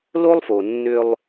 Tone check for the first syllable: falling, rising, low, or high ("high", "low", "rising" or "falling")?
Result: high